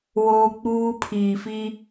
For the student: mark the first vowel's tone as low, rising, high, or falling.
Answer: high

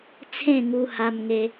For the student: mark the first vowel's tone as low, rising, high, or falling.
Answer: falling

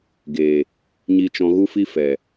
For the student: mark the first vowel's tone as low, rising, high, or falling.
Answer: low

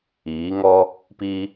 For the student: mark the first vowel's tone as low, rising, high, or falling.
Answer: rising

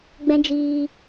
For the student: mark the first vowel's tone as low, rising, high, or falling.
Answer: high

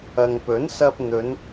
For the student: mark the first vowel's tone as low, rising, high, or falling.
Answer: low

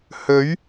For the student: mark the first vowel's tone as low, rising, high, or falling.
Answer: rising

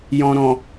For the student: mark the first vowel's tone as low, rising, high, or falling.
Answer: low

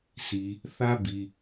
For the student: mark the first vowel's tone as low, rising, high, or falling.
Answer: low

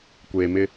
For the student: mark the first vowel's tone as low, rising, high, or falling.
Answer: low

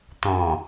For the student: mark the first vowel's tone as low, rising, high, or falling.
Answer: low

